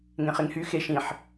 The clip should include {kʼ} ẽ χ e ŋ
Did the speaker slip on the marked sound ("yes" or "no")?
yes